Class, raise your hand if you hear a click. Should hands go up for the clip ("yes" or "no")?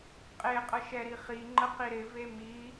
yes